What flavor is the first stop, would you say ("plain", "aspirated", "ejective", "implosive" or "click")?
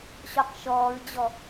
plain